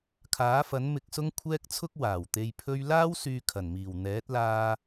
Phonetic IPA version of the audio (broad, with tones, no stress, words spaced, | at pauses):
kʰaː˨˥fɐ˨˥n mɪ˧k̚sʊ˥ŋkʷʰɛː˥k̚t͡sʰʊ˥k̚ waː˨˩wt̪e˧j pʰɵ˧ɥlaː˥w syː˧kʰɐ˨˩nmiː˨˩w n̪ɛː˨˥t̚laː˧